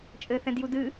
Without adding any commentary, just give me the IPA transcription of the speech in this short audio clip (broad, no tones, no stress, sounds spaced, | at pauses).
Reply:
t͡ʃʼ ɘː θ ɛ̃ d j u d ɨ